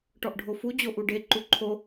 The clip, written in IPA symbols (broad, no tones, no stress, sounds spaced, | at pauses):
ʈ ɔ ʔ ɖʱ o f u d͡ʑ o ʔ u ɖ e ǃ u ǃʰ o